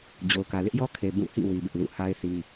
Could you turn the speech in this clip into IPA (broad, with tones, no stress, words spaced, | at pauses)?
d͡ʑo˨ʊ̯kä˨lɪ˦ʔjɔ˦ kʰe˨ bũ˦˨ hḭ˦˨ wi˦bɪ˦ʔlṵ˦˨ ha˦ɪ̯ θi˦